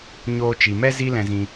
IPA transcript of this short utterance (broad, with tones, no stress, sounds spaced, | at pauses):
ɲ oː˧ t͡ʃ i˨ m ɛ˦ z i˦ l ɛ̃˧ z ĩ˧